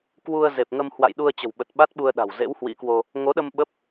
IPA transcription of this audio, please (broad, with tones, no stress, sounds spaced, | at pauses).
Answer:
k w u˧ ə̯ z e˨˩ p̚ ŋ ə˧ m h w a̰˧˨ j ɗ u˧ ə̯ t͡ɕ ə̤˨˩ w ɓ ə˨˩ t̚ ɓ a˦˥ t̚ ɓ u˧ ə̯ ɗ a̤˨˩ w z ḛ˧˥ w h w ḭ˧˥ k w o˧ | ŋ o˨˦ ɗ ə˧ m ɓ ə˦˥ p̚